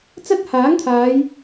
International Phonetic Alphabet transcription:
t͡sɐ˥t̚haː˨˥ŋt̪ʰaː˨˧j

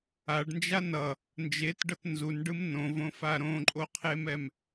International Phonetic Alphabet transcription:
aɖnd͡ʒa nʌ | nd͡ʒetɖʌt nzunɖɯm nõvõfa ɾõǃʼoqʰemɛm

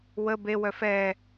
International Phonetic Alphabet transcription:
wə bewœ fɛ

